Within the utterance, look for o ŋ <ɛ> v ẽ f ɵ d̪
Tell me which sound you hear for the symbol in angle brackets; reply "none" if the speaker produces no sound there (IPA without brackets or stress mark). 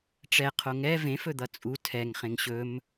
ɛ